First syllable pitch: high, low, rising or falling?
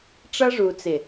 high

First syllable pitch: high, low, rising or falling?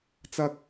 high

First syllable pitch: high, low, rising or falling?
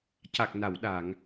low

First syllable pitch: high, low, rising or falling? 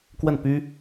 falling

